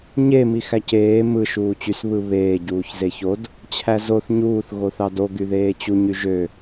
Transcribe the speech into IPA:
ɲ e m i x æ c eː m ɯ ʃ uː t͡ɕ y s β ɯ β eː ɟ uː ç z e ç o d | t͡ɕʰ æ z o θ ɲ uː θ ɣ o θ ɑ d o ɡ y ð eː t͡ɕ u ɲ y ʒ ø

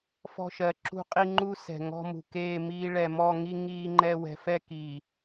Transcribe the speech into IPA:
f ɔ̤˦ ʃ ɜ˨ ǁ ṳ˦ qʼ i˦ ŋ͡ǃ u˦ s ɛ̤˨ ŋ ɔ̤˦ m ṳ˨ k eː˦˨ m iː˦ ɭ ɛ˨ m ɔ˦˨ ŋ i˦ ŋ iː˦ ŋ͡ǃ ɛ˦ w ɛ̤˨ f ɛ˦ k iː˨

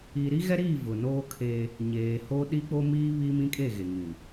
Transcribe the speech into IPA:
i˨ ɾ i˦ ɣ ɛ˦ ɾ iː˦˨ v ʊ˨ n oː˦ kʰ eː˦ | ɲ eː˨ h o˦ ɗ i˦ k͡p o˦ m iː˦ β iː˦ m ĩ˦ kʼ e˦˨ ɣ e˨ ŋ ĩ˨

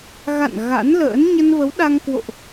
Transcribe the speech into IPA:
ɣ a̰˧˨ n ɣ a̰˧˥ n l ə̰ː˧˥ n ɲ ə˧ n v ə˨˦ w ɗ a˧ ŋ k w o̰˧˨ ʔ

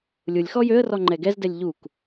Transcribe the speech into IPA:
lʲ ʊ lʲ x ɔ j ø ə̯ r ɔ ŋ͡ǃ ɛ ɡ ɛ z d ɛ lʲ ʎ u k

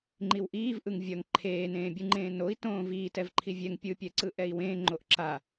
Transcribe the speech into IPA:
ŋ͡ǃ i w ʔ iː v ʔ ɯ ŋ vʲ ʌ ŋ ǃʰ eː n ẽː bʲ ɯ ŋ͡ǃ ẽː n o i̯ t õː v iː t ɛ v ǃʰ i vʲ ɛ ŋ pʲ ɯ pʲ ɛ ǀ ɯ ʔ ɛ i̯ w ẽː ŋ͡ǃ o ʔ ǁ a

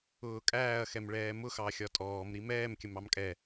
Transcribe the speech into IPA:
ʊː kʼ æː ɐ̯ x ɛ m ɭ ɛː m ʊ x ɑ xʲ ɒ tʼ ɔː m ɾ i m ɛː m kʲ ə m ɑ m kʼ ɛ

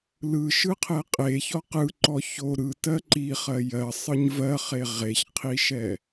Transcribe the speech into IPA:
l ɯ ʃ ɯ qʰ ɛ qʼ e ç ɔ q ɯ ǃ ɔ ç o ɾ ɯ t ɜ ǃ i χ ɜ j ɜ sˤ ɯ ɲ v ɜ χ e ʁ e ç qʰ i ʃ ɛ

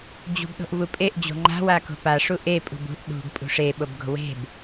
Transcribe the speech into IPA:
d͡ʑ ṳ b ɗ o̤ ʔ v u pʼ e ʔ d͡ʑ o̤ ŋ͡ǃ a̤ w a k o̤ p a ʂ u ʔ e pʼ ṳ b ṳ ʔ ɗ ṳ ɡ pʼ ṳ ʂ e ɓ o b ɡ o̤ w e̤ b

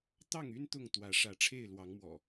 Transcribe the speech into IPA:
t̪ ɑ˥˨ ŋ y˦ n t̪ ʊ˥˨ ŋ t̪ w ä˨˦ ʂ ä˨˦ ʈ͡ʂʰ e˥˨ ɪ̯ l w ɑ˨˦ ŋ m w ɔ̰˨˩

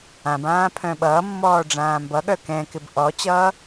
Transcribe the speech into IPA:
ã b ãː pʰ œ̃ ɓ ʌː mː ɔː ɖ͡ʐ ãː m b ʌ ɠ œ k ɛ̃ k ɪ b ʔ ɔ t͡ɕ ʌː

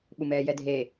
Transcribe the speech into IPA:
ɓ u m ɛː j ɛ dʱ e

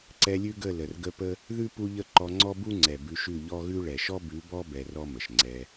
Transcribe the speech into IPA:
ǀ ɛ˧ lʲ ʉ˦ ɡ ə˦˨ l ə˨ r ɡ ə˦ p ə˦ | ð ʉ˦ p u˦ ʎ ə˦ ǃ ɔ˧ ŋ͡ǀ ɔ˦ b u˦ ŋ͡ǀ ɛ˨ b ʉ˧ ʃ ʉ˦˨ ʎ ɔ˦ ɣ ʉ˦ ɭ ɛ˨ ʃ ɔ˦ b ʉ˨˦ b ɔ˦ b ɛ˧ r ɔ˦ m ə˨ ʃ ŋ͡ǀ ɛ˧

